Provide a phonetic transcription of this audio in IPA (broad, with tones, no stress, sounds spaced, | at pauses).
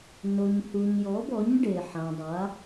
n o˨ ɲ h u˨ ɲ j ɔ˨˥ b ɔ˨˥ ɲ ɖ e˨ ħ ã˨ dˤ a˨˥